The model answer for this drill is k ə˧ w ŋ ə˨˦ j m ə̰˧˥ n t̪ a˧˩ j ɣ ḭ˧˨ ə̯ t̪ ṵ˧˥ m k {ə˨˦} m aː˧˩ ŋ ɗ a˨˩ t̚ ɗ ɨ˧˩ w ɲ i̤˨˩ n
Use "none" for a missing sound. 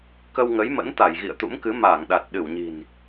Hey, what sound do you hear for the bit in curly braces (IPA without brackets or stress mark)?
ɨ˨˦